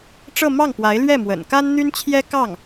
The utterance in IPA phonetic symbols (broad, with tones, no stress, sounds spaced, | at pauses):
ʈ͡ʂ ɤ˥˧ m ɑ˥˩ ŋ p w a˧˥ ɪ̯ l ɥ ɛ˥˩ m w ə̰˨˩ n k a˥ n n̪ y˥ n t͡ɕʰ j ɛ˥ k ɑ˥˩ ŋ